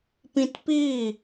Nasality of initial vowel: nasal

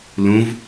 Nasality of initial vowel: nasal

